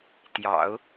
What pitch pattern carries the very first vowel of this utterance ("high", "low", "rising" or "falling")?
low